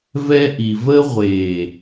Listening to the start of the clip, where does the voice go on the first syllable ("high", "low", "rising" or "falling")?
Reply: high